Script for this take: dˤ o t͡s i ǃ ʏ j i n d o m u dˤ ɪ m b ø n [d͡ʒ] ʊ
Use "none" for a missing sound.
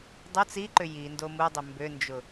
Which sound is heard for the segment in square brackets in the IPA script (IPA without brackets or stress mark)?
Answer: d͡ʒ